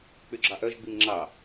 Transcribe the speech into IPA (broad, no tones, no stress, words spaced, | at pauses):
k͡pyɡ͡ǁɑʔœʒ ɡ͡bimŋ͡ǁɑ